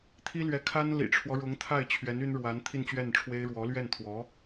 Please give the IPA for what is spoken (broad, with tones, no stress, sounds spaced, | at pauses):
t̪ʰ i˥ l ɥ ɛ˧˥ kʰ a˥ n l ḭ˨˩ ʈ͡ʂʰ w ɔ˦ ɻ ʊ˧˥ ŋ t̪ʰ a˥˩ ɪ̯ t͡ɕʰ ɥ ɛ˧˥ n y˥ n ɻ w a˧˥ n t̪ʰ i˥˧ n t͡ɕ ɥ ɛ˥˩ n ʈ͡ʂʰ w e˥ ɪ̯ ɻ w ɔ˧˥ l ɥ ɛ˥˩ n t̪ʰ w ɔ˧˥